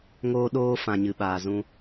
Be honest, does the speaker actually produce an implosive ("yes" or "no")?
yes